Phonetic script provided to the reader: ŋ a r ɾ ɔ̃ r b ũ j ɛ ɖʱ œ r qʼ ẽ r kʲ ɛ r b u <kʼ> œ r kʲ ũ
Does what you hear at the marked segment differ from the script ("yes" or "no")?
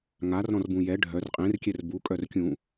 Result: no